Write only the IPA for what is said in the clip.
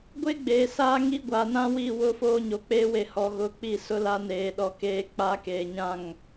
ɡʷe˦ ɡ͡beː˨saː˦ŋi˦ ɡʷa˨nã˦wi˦˨ wʊ˦foː˦ɲo˨k͡peː˦ we˨hɔ˨ ɣʊ˨ k͡pi˦˨sʊ˦la˦ neː˨ɗɔ˨ keː˨k͡pa˨˦ keː˨ɲã˦˨ŋ

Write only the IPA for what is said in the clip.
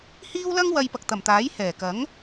hiː˥wlɐ˥ŋ wɐ˧jpɐ˨k̚t̪ɐ˨˩mt̪aː˨˥j hɛː˨˩kɐ˨˥ŋ

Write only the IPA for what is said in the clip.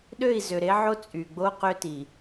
ɗø˦˨i̯zø˨ɾe˦ʕo˦ t͡sʼy˨ɡ͡bo˦ qø˦ti˨

